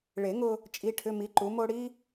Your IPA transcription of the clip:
ɭe˨˩˦ŋʊ˧ | t͡ʃʼi˧˥˧ʈʰʏ˧˥˧mi˨˥ ǃu˨˥mo˥ ɽi˥

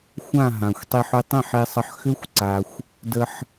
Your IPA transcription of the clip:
xʷã˥˩ ɦã˩xʷtˤi˧ħ ʏ˧tˤẽ˥˩ħ e˧sˤə˧ħ xʏ˥xʷ ǀa˩xʷ | də˧ħ

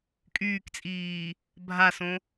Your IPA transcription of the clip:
kʼyːkt͡sʼiː | bʱasõ

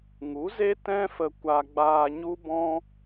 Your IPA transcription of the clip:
ŋu˨˦ze˦ tɛ̃˦fə˧ kʷa˧ɡ͡baː˧ɲu˦bɔ̃˦

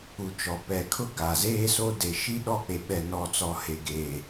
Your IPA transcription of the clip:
u˨t͡ʃɔ˨pɛ˨kʰʊ˦ ɡa˨zeː˦so˦ de˨ ʃi˦ɗɔ˦˨k͡pe˨ ɓɛ˨nɔ˨t͡sɔ˨ he˨ɡeː˨

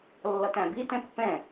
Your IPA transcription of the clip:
lːʌtæ̃bi tɛ̃pːɛ̃

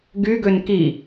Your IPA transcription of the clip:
ɡyɡøn ki

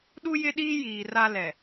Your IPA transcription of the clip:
ɗu˦jɪ˦ɗiː˦ jiː˨ra˦ lɛ˨

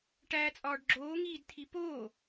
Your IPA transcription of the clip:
ʈæːt͡sʼɒːɖɡ͡ǁoː ŋiːdt̪ʰipoː

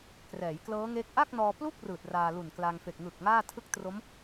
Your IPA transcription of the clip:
krɛː˩˦j klɤː˦˥ŋe˦˥k̚ ʔa˥˩k̚nɔː˧plu˥˩k̚ rɯː˨˩t̚raː˧lu˨˩n kla˧ŋfe˨˩k̚ ŋɯ˨˩k̚ ŋaː˥˩tʰɯ˥˩k̚tro˦˥m

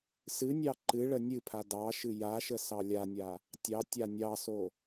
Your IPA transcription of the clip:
sɨnʲɑ ǃɨɭə nʲɨpʰa dɑʃɨ jaʃə sɑlʲanʲa | tʲɑ tʲanʲɑso

